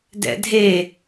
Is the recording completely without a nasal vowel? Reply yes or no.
yes